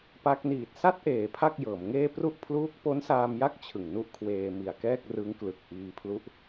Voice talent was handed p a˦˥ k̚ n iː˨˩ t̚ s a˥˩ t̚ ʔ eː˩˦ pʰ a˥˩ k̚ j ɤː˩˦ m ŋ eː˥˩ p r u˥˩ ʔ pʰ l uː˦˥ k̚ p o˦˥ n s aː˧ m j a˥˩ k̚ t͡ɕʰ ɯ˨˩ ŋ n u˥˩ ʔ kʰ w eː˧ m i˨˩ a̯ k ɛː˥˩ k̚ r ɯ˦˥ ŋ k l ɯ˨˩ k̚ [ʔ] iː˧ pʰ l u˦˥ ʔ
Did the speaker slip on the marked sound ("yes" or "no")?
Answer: no